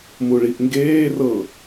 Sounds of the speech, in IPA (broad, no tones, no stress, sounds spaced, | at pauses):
m u ɭ i ʔ ŋ ɡ eː r ɤ